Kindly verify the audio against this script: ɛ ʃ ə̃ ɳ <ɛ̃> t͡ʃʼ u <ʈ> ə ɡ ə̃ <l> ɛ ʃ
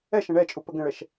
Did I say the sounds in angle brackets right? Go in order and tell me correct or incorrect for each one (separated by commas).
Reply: incorrect, incorrect, incorrect